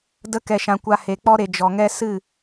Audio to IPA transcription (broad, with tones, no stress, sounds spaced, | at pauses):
d ə˧ k ɛ˨ ʃ ã˨ kʷ a˧ h e˨ k͡p ɔ˦ ɾ e˨ d͡ʒ ɔ˨ ŋ ɛ˦ s ɨ˦˨